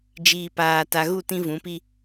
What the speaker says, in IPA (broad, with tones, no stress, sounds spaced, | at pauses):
d͡ʒ iː˨ p aː˨ t a˨ ɣ u˦˨ t ĩ˦ v ũ˨˦ p i˦